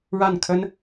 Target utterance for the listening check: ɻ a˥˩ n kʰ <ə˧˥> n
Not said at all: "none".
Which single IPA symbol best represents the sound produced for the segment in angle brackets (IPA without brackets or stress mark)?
ə˥